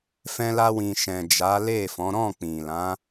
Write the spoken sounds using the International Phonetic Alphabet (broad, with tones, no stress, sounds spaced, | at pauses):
f ɛ̃˧ l a˧ w ĩ˨ ʃ ɛ̃˨ d͡ʒ a˨˦ l e˦˨ f ɔ̃˨˦ ɾ ɔ̃˦˨ k͡p ĩ˨ l ã˨˦